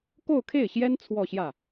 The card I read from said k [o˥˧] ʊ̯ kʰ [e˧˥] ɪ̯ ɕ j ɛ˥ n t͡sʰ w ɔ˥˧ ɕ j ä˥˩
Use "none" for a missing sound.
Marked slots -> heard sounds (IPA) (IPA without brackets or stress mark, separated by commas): o˥˧, e˥˩